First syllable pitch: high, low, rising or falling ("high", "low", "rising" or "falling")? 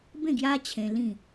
falling